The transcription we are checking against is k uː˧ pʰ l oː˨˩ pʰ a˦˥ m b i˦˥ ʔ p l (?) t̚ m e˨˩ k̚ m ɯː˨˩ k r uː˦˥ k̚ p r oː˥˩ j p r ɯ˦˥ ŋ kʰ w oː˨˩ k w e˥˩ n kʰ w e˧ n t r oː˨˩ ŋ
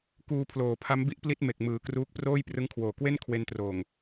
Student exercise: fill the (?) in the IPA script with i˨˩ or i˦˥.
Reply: i˦˥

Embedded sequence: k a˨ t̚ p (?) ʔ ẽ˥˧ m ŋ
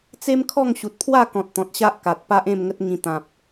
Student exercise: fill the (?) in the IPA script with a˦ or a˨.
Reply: a˦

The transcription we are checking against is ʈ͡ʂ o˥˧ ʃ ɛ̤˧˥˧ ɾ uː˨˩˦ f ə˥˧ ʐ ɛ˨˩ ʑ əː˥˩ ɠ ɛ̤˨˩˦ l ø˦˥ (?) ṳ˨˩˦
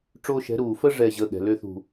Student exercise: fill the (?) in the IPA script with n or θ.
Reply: θ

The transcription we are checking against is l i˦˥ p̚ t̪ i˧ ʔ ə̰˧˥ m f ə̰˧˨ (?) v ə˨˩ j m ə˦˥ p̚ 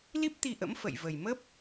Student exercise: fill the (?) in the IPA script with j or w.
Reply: j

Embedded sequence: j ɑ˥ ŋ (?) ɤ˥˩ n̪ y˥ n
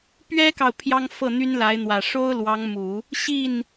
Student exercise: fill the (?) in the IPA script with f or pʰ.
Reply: f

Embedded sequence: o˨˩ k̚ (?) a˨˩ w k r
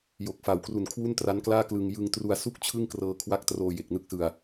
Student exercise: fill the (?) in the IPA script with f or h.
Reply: f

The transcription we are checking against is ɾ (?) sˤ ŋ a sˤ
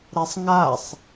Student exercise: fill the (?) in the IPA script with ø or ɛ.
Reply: ɛ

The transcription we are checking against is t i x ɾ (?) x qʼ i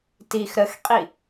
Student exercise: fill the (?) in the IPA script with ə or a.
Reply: ə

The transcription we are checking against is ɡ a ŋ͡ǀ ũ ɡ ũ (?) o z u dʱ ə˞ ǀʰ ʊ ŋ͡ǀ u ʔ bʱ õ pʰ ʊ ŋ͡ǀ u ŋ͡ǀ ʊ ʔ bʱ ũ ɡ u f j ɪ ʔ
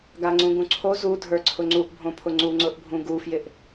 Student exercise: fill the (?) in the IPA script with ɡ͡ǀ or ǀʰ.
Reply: ǀʰ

